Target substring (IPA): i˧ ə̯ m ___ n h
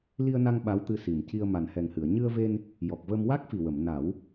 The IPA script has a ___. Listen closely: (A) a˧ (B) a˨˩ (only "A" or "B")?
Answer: B